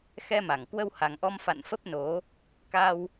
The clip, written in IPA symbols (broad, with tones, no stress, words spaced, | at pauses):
xɛ˧ma˧˩ŋ kwə˧wha˨˩ŋʔɔ˧m fa̰˧˨n fə˦˥p̚no˨˦ | ka˧w